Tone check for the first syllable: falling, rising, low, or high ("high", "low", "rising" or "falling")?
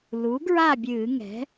rising